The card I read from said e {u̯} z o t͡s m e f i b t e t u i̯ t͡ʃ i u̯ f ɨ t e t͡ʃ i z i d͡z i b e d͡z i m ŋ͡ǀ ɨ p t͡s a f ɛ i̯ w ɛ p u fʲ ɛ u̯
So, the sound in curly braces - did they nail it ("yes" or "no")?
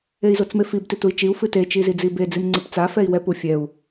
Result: no